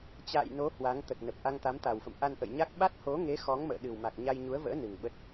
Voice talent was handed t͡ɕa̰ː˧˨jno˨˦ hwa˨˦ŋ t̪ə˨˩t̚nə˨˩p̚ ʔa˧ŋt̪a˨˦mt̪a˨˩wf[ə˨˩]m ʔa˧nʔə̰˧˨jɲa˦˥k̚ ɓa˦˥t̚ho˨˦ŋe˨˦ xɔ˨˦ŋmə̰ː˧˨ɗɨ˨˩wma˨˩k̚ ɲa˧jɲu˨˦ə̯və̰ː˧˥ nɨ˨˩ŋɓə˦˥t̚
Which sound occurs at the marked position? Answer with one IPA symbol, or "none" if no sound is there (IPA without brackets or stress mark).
ə̰˧˨